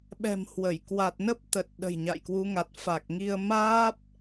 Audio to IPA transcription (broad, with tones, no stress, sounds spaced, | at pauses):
ɓ ɛ̤˨˩ m h w ə˧˩ j k w a˨˩ t̚ n ə˦˥ p̚ t̪ ə˨˩ t̚ ɗ ə̤˨˩ j ɲ a̰˧˨ j k w u˨˦ ŋ a˨˩ t̚ f a˨˩ k̚ ŋ i˧ ə̯ m aː˦˥ p̚